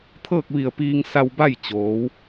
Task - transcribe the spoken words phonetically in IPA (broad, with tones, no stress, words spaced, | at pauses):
t̪ʰɤː˥˨k̚ʋi˧˩ə̯piː˧ŋ sa˧wba˥˨jt͡ɕoː˩˧w